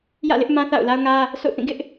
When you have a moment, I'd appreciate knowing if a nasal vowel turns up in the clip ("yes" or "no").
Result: yes